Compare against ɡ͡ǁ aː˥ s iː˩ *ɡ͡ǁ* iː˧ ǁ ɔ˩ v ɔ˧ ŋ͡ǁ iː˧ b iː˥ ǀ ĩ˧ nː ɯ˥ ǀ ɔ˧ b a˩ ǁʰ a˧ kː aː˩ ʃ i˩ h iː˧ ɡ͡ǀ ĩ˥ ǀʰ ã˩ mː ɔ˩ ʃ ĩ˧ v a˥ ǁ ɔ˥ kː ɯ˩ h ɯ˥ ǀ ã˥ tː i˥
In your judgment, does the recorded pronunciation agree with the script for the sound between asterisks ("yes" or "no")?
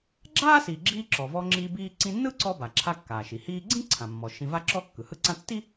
yes